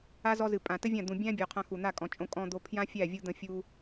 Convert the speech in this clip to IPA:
a˦ z ɔ˧ z ɨ˨ pʼ ã˨ t ɘ˦ vʲ ã˦˨ d̪ ũ˨ bʲ æ̃˦ bʲ ɔ˨ qʰ ã˧ x u˨ n̪ a˦˨ kʼ ɔ̃˨ t͡ʃʼ õ˧ kʼ ɔ̃˧ d̪ o˧ pʰ j ã˦ fʲ æ˦˨ vʲ u˧ d̪ ə̃˧ fʲ u˧

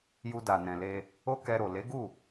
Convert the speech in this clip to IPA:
j u˧ d a˨ n ɛ̃˨ l e˧ | o˦ k ɛ˧ ɾ o˨ l e˨˦ ɡ u˦˨

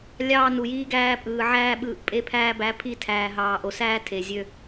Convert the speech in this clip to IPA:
lʲ ɑː˧ n u˨ j iː˧ ɡ æː˧ pʼ ɯː˨ ʕ æː˧ ɓ ɯː˨ ʔ pʼ e˧ pʰ æː˧ b æ˨˦ pʰ i˧ tʰ æː˨ ɦ ɑː˨ ʔ o˨ s æː˦ tʰ e˨ zʲ ø˧

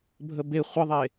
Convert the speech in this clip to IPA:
bʱ ə b e χʷ ə ðˤ e

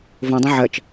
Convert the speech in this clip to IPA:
v õ dˤ õ ʕ ɜ t͡ʃ

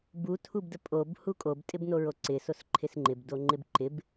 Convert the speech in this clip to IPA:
b u tʰ u b d ə pʼ o b h u kʼ o b tʼ ɪ b n o ɹ o ǀ ɪ s o s ǃʰ ɪ s ŋ͡ǃ ɪ b d o ŋ͡ǃ ɪ b ǃ ɪ b

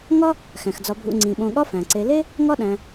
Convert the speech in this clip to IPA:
ŋ ɒ˥ | x æ̃˩ x d͡z ɒ˨ bʱ ṵ˨ ŋ͡ǀ ĩ˩ ɓ õ˨ ɠ ɒ˦ f æ̃˩ ǀ e˨ l e˥ | ŋ ɒ˥ ɗ æ̃˨

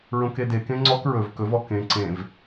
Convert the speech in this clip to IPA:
ɹ õ k e d e k ẽ ŋ͡ǀ ɔ k ɹ ɵ v k ɵ v ɔ k ẽ ǀ ẽ v

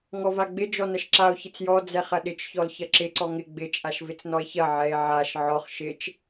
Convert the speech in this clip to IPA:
ŋ ɔ v a ɡ͡b ɪ d͡ʒ ɔ n ɐ ʃ ǁ a o̯ ç ɪ t͡s j ɔ d͡z ɛ χ ɐ ɗ ɪ t͡ʃ ç ɔ l ç ɐ ǁ ɪ ǀ ɔ ŋ ɪ ɡ͡b ɪ t͡ʃʼ a ʃ v ɪ t͡s n ɔ e̯ ç ɐ ʕ ɛ e̯ ʕ a ʃ ʕ ɔ χ ʃ ɪ t͡ʃ

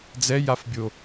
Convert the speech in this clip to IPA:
d͡z ɛ j a f bʲ o

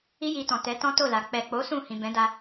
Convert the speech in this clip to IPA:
i˦ j i˧ t ɔ̃˨ t ɛ˨˦ t ɔ̃˦ t o˦˨ l a˨ k͡p ɛ˨ k͡p o˨˦ s ũ˦˨ h ĩ˨ b ɛ̃˨˦ d a˧

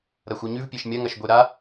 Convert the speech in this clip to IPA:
ɾ ɐ xʷ ɐ ɲ ʉ v pʲ e ʃ mʲ ɐ ŋ ɐ ʃ ɡʷ e ɾ a

